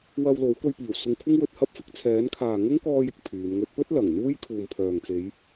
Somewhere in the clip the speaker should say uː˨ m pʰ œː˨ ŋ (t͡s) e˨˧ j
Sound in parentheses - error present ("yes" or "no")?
no